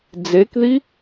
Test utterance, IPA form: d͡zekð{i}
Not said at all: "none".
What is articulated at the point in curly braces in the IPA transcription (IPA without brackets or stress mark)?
i